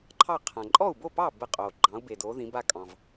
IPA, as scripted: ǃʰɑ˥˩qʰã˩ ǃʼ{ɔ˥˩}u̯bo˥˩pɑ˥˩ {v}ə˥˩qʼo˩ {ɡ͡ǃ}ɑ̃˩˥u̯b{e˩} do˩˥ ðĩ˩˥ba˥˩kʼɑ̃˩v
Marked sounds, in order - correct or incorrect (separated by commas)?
correct, incorrect, correct, correct